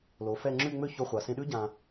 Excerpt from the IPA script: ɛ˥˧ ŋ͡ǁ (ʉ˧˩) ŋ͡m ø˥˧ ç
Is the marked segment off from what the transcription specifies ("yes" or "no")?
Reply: yes